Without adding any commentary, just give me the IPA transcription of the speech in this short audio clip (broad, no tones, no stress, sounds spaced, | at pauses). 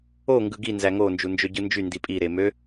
o ŋ ɡ ɯ ɡ i n z æ ŋ o n d͡ʒ u n d͡ʒ ø ɟ ɯ n d͡ʒ y n d i pʼ i ɾ e m ø